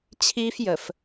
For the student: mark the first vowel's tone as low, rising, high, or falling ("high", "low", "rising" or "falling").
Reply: high